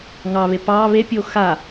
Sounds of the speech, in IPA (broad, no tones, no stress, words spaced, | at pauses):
ŋɑβe pɑ βepʲo xa